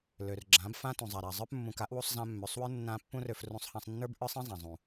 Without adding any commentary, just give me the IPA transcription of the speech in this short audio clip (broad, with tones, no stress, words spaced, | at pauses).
lø˨rɡ͡ǁã˨˦bfã˦ tũ˨zˤa˨ɾa˨zˤə˞˦p mːũ˨ka˨˦ʔwu˧sˤ zã˧mːø˨sˤwə˞˦ nːã˦ pːũ˦rø˧frũ˧sˤhã˧sˤ nːə˞˦bʔə˞˦sˤɛ̃˦ zˤã˨zˤũ˨